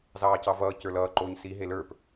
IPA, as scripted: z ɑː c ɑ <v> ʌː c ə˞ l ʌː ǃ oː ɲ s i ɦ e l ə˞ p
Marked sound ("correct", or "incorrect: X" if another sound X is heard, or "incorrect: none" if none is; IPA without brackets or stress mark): correct